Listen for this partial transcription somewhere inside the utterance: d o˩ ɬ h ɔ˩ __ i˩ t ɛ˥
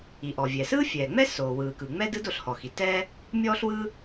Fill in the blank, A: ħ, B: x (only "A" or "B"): B